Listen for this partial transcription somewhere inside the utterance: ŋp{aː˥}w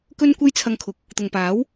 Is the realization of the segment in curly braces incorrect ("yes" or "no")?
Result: yes